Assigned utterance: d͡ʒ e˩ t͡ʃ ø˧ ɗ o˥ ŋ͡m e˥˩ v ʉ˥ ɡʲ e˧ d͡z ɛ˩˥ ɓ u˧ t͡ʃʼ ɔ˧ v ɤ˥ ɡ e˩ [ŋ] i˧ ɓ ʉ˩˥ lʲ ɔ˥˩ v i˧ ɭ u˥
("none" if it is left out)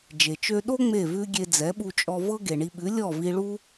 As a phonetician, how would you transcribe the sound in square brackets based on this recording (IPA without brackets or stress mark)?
ɳ